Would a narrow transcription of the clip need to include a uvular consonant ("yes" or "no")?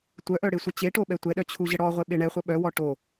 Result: yes